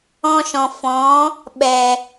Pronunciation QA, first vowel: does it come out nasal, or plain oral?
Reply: nasal